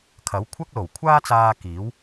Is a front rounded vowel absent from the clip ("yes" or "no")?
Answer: yes